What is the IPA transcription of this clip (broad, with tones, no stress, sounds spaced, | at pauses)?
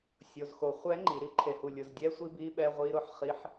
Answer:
sʲ o˨ z x o˨ χʷ ɛ˦˥ ŋ͡ǃ i˨ ɾ i˨ ǃʰ e˨ h u˨ lʲ ʊ˨ z dʲ ɛ˦˥ sʷ i˦˥ b i˦˥ ɓ ɛ˦˥ ʁʷ i˦˥ ɾ ʊ˦˥ ħ χ i˦˥ ħ